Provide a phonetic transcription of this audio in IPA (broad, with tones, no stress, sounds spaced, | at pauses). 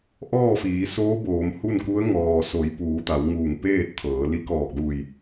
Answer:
ʔ ɔː˥˨ f iː˩˧ s oː˧˥ b oː˩˧ m h u˥˨ n k u˧˥ ə̯ ŋ ɔː˩ s o˩˧ j p uː˩˧ t̪ a˩˧ w ŋ uː˧˩ ŋ p eː˥˨ t̚ t̪ʰ ɤː˩˧ l i˧˥ k ɔː˧˩ k̚ l u˧˩ j